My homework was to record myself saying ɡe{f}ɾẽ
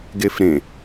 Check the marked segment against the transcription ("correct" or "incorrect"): correct